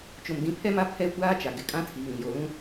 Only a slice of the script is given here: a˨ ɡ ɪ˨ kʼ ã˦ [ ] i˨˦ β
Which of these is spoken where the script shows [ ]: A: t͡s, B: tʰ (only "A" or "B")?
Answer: B